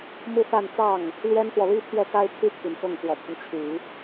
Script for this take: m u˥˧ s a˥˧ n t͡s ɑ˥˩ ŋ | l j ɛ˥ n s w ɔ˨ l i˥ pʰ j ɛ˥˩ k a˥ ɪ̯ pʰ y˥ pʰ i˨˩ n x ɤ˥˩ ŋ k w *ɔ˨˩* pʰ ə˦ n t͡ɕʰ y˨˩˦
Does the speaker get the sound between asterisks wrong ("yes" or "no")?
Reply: no